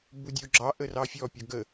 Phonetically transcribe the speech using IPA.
budʲoɡ͡ǁɑ ʔərɑfʲɔ pʲɔɡə

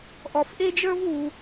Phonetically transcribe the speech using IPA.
ʔɔ˨fʔe˥d͡ʒə˞˥v u˨

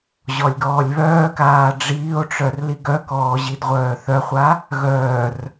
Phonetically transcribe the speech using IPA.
ʑɔlʲɡɔːlʲβœːkaː ɖ͡ʐiːo̯ʈ͡ʂœr liɡœkɔː ʑidʁʷœːθœχʷa | ɣœːr

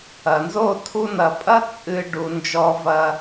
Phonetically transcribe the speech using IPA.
ɐ˨nzo˦˨ tʰu˧nɐ˨pʼɐ˦ t͡sʼɨ˧ ɖu˨ nd͡ʒɔ˧vɐ˧

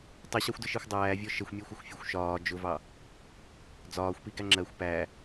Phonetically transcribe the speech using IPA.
tˤiɕɑxʷdɪʃixʷ dˤæːvʲɔ ʃəxʷmʲɛ xʷəxʷfʲɒxʷʃɒː d͡ʒʊvɑ | d͡zɒːxʷpi ɡæŋ͡ǁɜxʷ pæ

